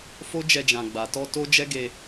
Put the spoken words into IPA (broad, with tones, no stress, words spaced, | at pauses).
fo˦d͡ʒɛ˧ d͡ʒã˨ɡ͡ba˨tɔ˧ to˦ d͡ʒɛ˦ ɡe˧